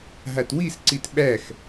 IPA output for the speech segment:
ɦatwisǀit ɓæx

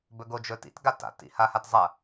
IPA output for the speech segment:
bɵɡod͡ʒɵtḭt ɡata̰t ḭhahatzˤɐ

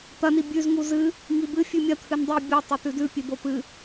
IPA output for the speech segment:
t̪ɐni bʲʉz ŋuzɨ | ŋibɨ fʲʉmʲɐ t̪ʰɨndˤi bʲo tˤot̪ʉdʉ pʲebopɨ

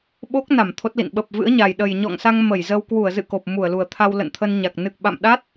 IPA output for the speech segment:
ɓo˦˥k̚na˧˩m t̪ʰo˦˥t̚lḭ˧˨n ɓə˨˩p̚vɨ̰˧˥ə̯ɲa˨˩j ɗə˨˩jɲɔ̰˧˨ŋsa˧ŋ mə˧˩jzə˧w kwu˧˩ə̯zɨ̰˧˨ ko˨˩p̚mu˧˩ə̯lu˨˩ə̯t̪ʰa˧w lə̰˧˨nt̪ʰə˧nɲa˨˩k̚ nɨ˨˩k̚ɓa̰˧˨mɗa˦˥t̚

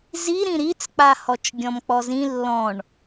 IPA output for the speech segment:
zi ɾĩɾit͡sk͡pahɔt͡ʃ ɡʲɔ̃mk͡pɔzĩ lːɔ̃ɳ

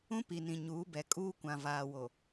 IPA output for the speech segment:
ũ˦pi˨ nĩ˨ ɲuː˨˦bɛ˨ kʼuː˦ kʷã˨vaː˨wo˨

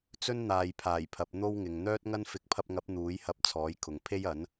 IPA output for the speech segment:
t͡sɵ˥nn̪aː˨jpʰaː˨˩jpʰɐ˨p̚ n̪o˥wŋɪ˨ŋ n̪œː˥t̚ŋɐ˥n fɪ˨˥k̚pʰɐ˧p̚ŋɐ˨˥p̚ n̪uː˨˥jhɐ˧p̚ t͡sʰɔː˨˥jkʰʊ˨ŋ pʰe˥jɐ˨˥n

